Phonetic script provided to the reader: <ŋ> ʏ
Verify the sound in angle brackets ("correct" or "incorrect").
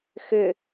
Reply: incorrect